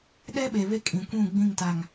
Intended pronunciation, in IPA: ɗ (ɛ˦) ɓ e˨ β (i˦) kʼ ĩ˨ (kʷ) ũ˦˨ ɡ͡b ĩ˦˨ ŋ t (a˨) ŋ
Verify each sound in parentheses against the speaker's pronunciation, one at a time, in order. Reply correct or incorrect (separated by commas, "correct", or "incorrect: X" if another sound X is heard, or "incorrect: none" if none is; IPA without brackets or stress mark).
correct, incorrect: e˦, correct, correct